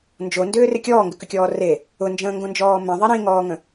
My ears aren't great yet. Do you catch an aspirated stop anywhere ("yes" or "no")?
no